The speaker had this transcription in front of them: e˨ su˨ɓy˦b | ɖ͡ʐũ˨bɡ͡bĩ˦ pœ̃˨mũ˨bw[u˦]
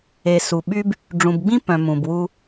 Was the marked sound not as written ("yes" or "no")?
no